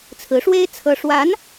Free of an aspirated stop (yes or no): no